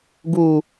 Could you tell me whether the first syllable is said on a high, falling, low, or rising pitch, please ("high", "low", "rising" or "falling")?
high